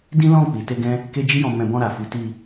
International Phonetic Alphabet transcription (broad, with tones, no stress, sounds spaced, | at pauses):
d ĩ˦ l ɔ̃˦˨ k͡p i˨ t e˧ ɡ ɛ̃˦ | k e˦ d͡ʒ i˦ j ɔ̃˧ m ɛ̃˧ b ɔ̃˧ ɾ a˨ f i˨˦ t i˧